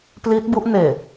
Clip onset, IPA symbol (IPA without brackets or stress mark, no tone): p